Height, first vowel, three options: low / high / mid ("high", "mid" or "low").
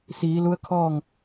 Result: high